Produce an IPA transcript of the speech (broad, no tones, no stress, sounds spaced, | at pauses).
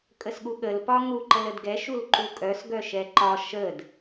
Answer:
kʼ ə s ɠ u ɠ ə l p ɒ ŋ u ǃ ə l ə d ɡ ɛ ʃ u l ǃ u kʼ œ s ɡ œ ʃ ɛ ǃ ɒ ʃ ə d